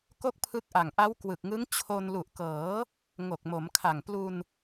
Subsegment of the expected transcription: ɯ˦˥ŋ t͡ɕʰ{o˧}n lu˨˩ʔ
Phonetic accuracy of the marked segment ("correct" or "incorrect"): correct